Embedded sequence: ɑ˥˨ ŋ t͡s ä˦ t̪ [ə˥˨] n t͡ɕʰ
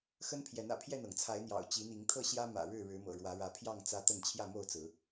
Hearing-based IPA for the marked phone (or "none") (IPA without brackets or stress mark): ə˥˨